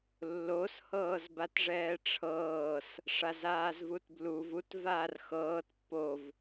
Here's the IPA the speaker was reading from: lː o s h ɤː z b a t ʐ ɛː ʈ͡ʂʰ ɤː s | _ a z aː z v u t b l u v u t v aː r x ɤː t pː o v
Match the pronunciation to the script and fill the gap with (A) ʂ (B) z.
A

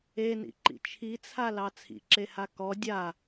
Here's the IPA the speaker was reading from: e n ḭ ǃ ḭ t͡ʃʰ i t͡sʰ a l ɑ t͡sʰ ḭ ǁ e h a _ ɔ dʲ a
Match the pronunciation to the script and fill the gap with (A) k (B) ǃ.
A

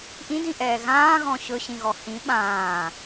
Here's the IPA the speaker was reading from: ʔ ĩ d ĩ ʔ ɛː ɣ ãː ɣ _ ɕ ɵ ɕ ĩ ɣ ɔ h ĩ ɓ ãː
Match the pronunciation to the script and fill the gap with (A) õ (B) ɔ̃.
B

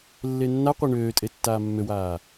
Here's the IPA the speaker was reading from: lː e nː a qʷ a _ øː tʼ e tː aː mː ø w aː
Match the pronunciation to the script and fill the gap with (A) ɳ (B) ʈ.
A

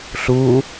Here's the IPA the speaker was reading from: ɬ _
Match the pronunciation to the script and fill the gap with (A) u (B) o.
A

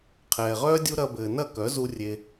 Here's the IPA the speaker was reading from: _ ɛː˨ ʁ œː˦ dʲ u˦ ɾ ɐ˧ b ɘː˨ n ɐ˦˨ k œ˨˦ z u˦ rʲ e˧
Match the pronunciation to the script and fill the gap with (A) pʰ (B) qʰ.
B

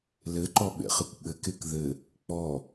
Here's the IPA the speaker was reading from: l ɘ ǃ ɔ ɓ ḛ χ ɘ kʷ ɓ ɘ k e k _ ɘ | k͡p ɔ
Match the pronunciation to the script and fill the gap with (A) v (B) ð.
B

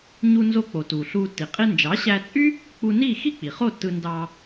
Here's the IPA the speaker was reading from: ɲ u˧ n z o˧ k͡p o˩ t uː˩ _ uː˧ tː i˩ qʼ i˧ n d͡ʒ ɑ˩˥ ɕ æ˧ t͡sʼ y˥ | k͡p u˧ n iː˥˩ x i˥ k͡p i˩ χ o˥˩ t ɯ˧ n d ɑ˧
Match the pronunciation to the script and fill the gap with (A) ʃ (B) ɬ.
B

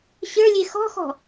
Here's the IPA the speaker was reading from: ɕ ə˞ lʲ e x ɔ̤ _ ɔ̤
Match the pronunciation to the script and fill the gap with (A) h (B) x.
B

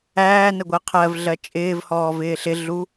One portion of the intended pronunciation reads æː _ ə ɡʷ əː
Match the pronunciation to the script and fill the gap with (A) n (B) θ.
A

